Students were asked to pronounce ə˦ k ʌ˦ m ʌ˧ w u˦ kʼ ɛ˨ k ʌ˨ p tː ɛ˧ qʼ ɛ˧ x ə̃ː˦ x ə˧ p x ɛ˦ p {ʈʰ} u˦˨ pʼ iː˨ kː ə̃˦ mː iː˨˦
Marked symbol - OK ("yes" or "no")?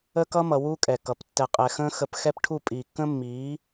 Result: yes